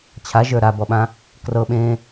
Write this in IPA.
t͡ɕʰ a ʒ ə˞ ɾ a b ɔ ɓ ã | k r ɤ ɓ ẽː

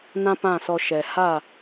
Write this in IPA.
n ã˦ p ã˦˨ s ɔ˧ ʃ ɛ˨ h a˦˨

